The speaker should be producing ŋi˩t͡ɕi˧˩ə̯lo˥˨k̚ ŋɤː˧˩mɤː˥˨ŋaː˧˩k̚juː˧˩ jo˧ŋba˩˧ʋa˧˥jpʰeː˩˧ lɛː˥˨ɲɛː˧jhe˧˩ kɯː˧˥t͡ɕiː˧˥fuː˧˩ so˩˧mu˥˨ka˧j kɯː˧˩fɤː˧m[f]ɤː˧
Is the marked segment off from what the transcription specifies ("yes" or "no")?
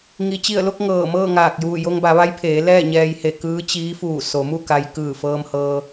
yes